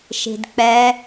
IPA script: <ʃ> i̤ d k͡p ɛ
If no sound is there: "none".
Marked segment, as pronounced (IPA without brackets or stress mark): ʃ